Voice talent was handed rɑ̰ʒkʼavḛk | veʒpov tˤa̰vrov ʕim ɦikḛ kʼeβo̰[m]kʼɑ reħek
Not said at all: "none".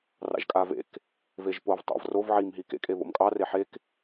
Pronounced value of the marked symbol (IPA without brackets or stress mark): m